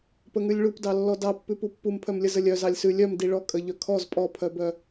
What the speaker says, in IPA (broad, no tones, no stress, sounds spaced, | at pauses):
p ə ŋ ʉ lʲ ɭ u p d ɑ lː ɔ d ɑ pː ʉ p u pː u m pʰ œ m lʲ ə z ə lʲ œ z ɑ lʲ s ʉ lʲ œ m d i ɭ ɔ kʼ ə ʎ œ kʰ ɔ z pʼ ɔ pʰ œ b œ